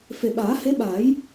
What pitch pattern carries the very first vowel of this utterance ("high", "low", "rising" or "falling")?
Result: low